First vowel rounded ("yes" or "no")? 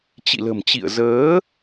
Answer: no